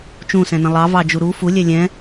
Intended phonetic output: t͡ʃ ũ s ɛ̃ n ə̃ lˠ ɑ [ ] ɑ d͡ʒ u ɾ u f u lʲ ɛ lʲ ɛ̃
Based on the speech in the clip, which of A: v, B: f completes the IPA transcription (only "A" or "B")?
A